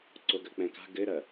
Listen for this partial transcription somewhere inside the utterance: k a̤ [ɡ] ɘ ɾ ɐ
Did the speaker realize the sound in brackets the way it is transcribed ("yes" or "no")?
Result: yes